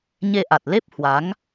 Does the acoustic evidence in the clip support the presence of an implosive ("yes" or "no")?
no